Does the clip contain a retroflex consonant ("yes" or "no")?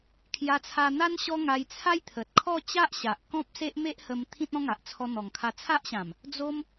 no